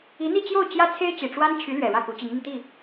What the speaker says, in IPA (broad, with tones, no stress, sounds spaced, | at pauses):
i˧˥ n̪ i˥˧ t͡ɕ j o˥˩ ʊ̯ t͡ɕ j ä˥ t͡sʰ e˥ ɪ̯ t͡ɕ i˨˩ ʈ͡ʂ w a˥ n t͡ɕʰ y˧˥ l ɥ ɛ˨˩ ɻ ä˥˩ k u˧˥ t͡ɕ i˧˥ ŋ m i˧ ŋ t̪ i˥˩